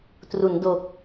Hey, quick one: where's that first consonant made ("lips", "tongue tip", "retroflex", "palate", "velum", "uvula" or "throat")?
tongue tip